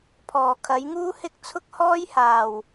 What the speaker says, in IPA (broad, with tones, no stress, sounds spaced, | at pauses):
pʰ ɔː˨˩ kʰ ɐ˨˥ j ŋ uː˥ h ɪ˥ k̚ t͡sʰ ʊ˥ k̚ h ɔː˥ j h aː˨˩ w